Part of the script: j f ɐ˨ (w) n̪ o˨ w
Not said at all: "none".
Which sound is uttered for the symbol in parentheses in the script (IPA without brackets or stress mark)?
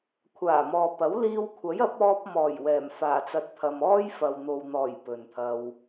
w